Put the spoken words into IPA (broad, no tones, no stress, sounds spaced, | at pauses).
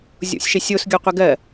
zʲ o̰ sʲ ʃ e sʲ o s ɡʲ o qʷ ɜ ɡ ɜ